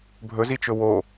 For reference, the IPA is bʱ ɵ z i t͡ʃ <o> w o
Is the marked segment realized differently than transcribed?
yes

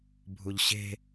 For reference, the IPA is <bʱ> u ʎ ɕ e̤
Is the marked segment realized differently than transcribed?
no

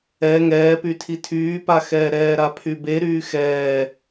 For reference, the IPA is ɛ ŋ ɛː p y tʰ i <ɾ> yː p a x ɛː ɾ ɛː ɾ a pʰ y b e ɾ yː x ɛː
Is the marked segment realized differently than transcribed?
yes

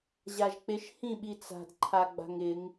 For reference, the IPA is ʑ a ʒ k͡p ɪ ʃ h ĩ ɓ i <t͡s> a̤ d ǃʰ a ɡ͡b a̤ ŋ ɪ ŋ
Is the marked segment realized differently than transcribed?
no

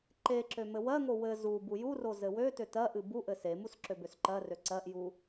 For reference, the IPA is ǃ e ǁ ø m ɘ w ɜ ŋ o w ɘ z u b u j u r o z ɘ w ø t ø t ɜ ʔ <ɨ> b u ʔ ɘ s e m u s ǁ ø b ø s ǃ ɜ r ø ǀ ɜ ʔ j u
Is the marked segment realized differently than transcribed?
no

